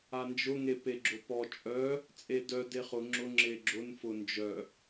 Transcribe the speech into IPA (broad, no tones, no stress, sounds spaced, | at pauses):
a n d͡ʒ ʊ ŋ e p e ɡ͡ǁ ʊ p ɔ t͡ʃʼ œ | t͡sʼ e d œ d e χ ʊ ŋ͡ǁ ʊ ŋ͡ǁ e ɡ͡ǁ ʊ n f ʊ n d͡ʒ œ